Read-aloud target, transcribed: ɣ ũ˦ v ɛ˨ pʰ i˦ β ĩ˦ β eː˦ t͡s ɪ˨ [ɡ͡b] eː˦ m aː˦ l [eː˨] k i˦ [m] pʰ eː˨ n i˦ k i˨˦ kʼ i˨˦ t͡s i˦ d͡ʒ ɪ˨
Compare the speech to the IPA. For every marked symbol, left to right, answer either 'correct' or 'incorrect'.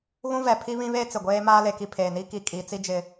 incorrect, incorrect, incorrect

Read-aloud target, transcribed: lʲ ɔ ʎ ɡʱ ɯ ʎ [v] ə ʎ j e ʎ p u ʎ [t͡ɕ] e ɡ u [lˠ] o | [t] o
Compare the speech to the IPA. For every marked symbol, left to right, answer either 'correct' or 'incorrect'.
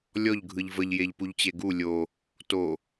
correct, correct, incorrect, correct

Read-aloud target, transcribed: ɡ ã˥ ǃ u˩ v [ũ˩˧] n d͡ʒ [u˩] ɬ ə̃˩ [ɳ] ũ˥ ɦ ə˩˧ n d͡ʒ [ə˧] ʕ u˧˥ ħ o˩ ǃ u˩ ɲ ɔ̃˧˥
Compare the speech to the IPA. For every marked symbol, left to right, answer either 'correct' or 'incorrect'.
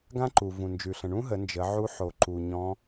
incorrect, incorrect, correct, incorrect

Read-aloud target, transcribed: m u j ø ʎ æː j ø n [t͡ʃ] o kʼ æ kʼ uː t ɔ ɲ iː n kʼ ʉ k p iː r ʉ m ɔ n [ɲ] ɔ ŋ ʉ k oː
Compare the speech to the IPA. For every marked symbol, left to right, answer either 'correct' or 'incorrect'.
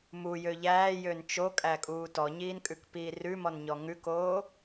correct, correct

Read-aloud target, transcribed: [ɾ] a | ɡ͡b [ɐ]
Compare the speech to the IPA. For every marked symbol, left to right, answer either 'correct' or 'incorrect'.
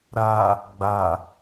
correct, incorrect

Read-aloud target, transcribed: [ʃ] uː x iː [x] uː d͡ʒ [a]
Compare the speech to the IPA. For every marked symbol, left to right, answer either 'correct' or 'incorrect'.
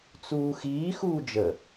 incorrect, correct, incorrect

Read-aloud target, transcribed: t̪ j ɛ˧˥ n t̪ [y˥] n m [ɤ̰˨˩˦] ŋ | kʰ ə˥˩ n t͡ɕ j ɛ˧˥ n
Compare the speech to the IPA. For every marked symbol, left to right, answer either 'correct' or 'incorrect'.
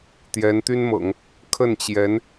correct, correct

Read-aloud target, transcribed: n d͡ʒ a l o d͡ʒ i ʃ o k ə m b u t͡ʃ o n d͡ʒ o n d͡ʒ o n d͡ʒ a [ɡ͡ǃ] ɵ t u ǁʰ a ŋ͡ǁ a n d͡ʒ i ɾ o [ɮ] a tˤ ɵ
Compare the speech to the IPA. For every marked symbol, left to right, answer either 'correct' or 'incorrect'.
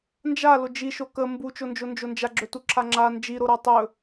incorrect, incorrect

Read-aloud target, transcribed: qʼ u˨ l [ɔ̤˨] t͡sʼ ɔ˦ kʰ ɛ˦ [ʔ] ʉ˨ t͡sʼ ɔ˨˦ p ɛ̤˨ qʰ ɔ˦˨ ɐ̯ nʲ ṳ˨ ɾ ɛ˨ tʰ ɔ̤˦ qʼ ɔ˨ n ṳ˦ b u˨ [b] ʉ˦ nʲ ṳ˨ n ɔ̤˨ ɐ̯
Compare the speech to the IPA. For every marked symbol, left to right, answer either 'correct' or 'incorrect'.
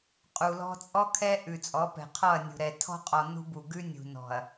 incorrect, correct, incorrect

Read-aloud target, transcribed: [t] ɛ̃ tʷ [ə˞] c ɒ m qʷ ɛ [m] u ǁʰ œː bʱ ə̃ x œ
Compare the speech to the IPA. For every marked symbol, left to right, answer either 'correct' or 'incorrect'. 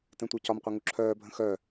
correct, correct, incorrect

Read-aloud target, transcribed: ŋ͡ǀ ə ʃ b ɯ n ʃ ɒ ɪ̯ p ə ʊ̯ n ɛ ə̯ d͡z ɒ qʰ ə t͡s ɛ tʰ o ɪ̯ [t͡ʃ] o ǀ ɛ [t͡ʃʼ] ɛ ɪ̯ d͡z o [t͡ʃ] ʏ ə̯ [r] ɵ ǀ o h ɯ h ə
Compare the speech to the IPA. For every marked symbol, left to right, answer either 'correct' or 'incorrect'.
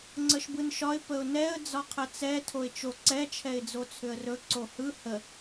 correct, incorrect, incorrect, correct

